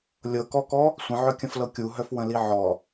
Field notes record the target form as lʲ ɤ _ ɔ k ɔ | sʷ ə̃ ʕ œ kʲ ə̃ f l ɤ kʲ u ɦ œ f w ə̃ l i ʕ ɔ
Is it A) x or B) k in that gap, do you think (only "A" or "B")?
B